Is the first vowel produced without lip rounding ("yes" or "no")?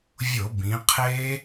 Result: no